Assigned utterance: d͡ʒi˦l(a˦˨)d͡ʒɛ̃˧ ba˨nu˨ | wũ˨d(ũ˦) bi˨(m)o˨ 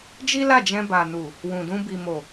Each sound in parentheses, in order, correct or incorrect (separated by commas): correct, incorrect, correct